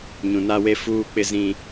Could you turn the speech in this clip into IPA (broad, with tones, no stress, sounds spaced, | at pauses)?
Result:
ɲ ũ˨ n a˦ w e˦ f uː˦ k͡p ɪ˦ z ĩ˦